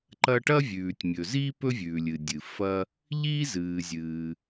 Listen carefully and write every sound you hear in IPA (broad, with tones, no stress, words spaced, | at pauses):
ǃɐ˥ ʈɐ˥vʲʉː˩tʲmʲɵ˩ziː˥ pɵ˥vʲʉː˩lʲɨ˩dʲɨ˩ fɐ˥ | ʎiː˥zɨː˩zʲɨː˩